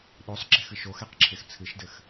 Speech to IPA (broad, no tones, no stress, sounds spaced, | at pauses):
ɗ o sˤ ǁ e̤ x ɨ ʃ o x ɛ q ǁʰ e x t͡sʰ ɨ ʃ d ɘ x